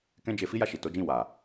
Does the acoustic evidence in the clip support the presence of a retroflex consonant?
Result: no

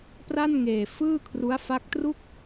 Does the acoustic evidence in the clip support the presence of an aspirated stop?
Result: yes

